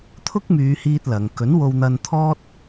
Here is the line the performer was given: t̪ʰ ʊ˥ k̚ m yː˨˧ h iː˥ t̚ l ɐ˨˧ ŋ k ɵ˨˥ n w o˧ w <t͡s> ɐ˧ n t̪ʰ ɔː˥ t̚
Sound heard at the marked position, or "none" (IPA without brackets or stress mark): n̪